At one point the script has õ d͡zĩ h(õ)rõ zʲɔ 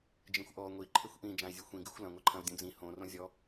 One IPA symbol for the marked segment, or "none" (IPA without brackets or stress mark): õ